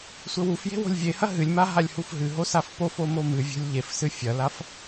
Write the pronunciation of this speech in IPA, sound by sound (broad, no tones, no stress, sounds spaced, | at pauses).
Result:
sʷ ɘ w u f j e̤ w o̤ lʲ vʲ e h ɐ ɦ ɨ lʲ m a ɦ a lʲ h u f ɦ ɨ ɦ o s a f p o f o m o m ɨ vʲ o̤ lʲ ʎ e f s ɨ fʲ ɐ l a f